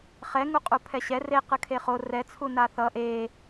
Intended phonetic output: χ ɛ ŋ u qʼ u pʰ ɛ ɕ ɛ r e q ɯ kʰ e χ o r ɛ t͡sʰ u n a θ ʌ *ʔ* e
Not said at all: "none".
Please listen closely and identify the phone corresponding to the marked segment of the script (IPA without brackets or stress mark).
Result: ʔ